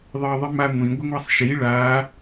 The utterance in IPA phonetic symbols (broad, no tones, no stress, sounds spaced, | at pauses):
ðˤ ɜ ðˤ i m a ŋʷ ĩ ɡʷ ə ŋʷ a sˤ ʃ i ɭ a